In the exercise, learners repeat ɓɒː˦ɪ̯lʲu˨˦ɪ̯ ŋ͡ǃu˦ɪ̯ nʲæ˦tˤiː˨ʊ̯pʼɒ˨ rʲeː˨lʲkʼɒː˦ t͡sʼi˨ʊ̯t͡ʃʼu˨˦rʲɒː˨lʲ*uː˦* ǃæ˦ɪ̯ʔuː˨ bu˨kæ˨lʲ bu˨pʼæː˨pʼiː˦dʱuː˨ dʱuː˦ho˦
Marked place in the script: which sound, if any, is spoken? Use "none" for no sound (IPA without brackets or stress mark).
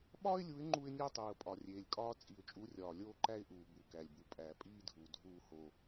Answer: oː˦